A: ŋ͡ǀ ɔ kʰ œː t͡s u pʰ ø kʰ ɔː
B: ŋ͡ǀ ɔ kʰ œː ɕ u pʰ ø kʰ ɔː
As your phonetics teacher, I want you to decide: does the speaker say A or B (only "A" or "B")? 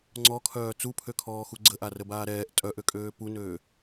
A